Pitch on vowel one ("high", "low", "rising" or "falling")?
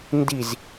falling